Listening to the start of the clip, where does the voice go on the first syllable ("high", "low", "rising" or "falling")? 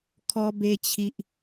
high